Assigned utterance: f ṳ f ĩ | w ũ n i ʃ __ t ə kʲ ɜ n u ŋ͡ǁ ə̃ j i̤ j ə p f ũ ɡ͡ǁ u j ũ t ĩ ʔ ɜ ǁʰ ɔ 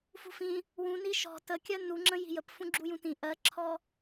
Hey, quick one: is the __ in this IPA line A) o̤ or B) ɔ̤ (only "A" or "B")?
B